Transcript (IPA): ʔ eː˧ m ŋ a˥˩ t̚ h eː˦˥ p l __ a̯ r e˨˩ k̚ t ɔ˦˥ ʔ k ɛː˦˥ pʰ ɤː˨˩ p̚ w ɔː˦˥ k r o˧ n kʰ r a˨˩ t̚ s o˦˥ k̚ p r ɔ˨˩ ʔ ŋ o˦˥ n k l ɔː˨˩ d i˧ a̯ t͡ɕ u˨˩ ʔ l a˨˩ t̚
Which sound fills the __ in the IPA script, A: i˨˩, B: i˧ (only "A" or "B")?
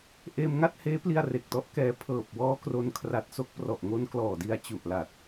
B